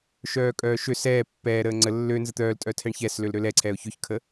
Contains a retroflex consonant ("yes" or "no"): yes